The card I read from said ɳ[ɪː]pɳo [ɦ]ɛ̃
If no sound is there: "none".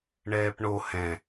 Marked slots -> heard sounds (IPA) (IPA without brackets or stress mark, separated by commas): ɛː, h